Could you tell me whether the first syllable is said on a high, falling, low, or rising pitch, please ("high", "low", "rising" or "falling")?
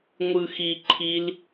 low